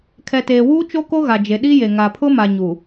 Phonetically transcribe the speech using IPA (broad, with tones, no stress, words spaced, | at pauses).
kʰɛ˨teː˨wuː˦ t͡ʃo˦ko˦ɣa˨d͡ʒe˨ ɗi˦je˨ ŋa˨pʰʊ˦ma˨ ɲu˨